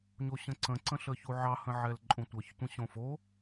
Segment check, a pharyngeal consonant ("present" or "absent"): present